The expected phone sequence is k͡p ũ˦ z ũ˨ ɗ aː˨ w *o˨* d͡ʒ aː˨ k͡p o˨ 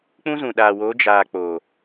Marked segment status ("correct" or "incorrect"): incorrect